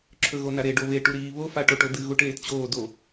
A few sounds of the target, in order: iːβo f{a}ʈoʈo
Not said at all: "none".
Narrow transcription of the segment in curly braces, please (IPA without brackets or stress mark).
a